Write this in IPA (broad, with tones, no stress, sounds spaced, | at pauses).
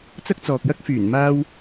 t͡s ɐ˥ k̚ t͡s ɔː˨ k̚ j ɐ˥ k̚ f yː˨˩ n m aː˥ w